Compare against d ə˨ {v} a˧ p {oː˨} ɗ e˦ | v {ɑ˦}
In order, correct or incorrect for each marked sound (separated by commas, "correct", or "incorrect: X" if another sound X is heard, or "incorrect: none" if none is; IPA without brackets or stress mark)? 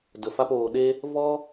incorrect: f, correct, incorrect: ɔ˦